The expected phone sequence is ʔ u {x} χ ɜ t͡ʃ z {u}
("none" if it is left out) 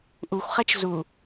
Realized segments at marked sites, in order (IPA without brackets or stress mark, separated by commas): xʷ, u